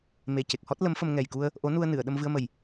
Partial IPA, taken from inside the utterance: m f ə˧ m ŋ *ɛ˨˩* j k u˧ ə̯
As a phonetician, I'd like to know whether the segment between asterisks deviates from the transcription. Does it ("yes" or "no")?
no